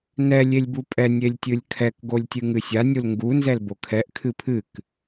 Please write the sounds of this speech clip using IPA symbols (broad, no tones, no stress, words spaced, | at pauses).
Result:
nɛ lʲelʲbupʼɛ nʲelʲtʲɨlʲkʰɛk ɡolʲtʲɨŋɨsʲa nʲulŋɡu nzɛlbokʰɛʔ kʰɨpʰɨk